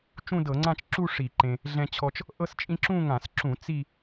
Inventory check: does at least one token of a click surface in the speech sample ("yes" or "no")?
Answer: yes